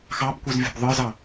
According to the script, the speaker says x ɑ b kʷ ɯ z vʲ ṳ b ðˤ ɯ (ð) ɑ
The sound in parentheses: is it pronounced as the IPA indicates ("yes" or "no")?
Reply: no